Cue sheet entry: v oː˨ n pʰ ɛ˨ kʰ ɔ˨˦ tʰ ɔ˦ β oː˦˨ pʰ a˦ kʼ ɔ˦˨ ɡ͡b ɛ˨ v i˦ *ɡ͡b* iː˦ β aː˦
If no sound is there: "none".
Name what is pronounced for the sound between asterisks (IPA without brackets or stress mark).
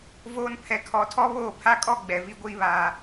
ɡʷ